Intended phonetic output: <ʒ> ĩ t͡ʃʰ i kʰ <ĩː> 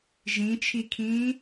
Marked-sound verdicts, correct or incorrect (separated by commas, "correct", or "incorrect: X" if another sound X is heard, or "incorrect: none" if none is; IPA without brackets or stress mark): correct, correct